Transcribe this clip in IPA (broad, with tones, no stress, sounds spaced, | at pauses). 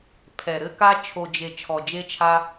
pʰ ɛ˨ ɾ ɘ˧ k a˧ t͡ʃʰ o˨ d͡ʒ e˨ t͡ʃʰ ɔ˨ d͡ʒ e˧ t͡ʃʰ a˧